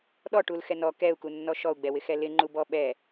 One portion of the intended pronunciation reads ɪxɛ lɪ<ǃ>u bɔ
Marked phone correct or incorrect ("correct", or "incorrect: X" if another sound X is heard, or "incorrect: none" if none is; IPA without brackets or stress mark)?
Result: incorrect: ŋ͡ǃ